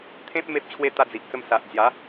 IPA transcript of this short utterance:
t̪ʰ ẽ˦ p̚ m e˦ p̚ t͡ɕʰ w e˦ t̪ a˧ d͡z i˨ ʔ t͡s ə˧ m s a˨ ʔ d͡z j a˨˦

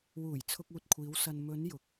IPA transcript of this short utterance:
w uː˨˩ j t͡sʰ ʊ˧ k̚ uː˨ t̚ kʷʰ iː˨˧ w s ɐ˨ n m ɵ˨˧ n j ʊ˨˥ k̚

